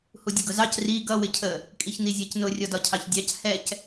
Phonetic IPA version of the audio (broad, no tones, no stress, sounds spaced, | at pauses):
h u dʲ ə ɡ ʊ z ɑ c r i ɡ ʌ w ɪ cʰ ə | kʼ i ç n i zʲ ɜ c n ʊ rʲ ɔ d ɒ cʰ ɑ ç dʲ ɑ c h ɛ c